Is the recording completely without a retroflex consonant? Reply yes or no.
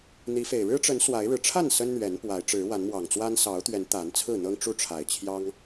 no